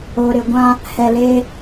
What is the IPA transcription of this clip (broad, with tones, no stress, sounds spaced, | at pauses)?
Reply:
oː˨ ɾ ɪ˨ ɡʷ ã˦ | h ɛ˨ l eː˦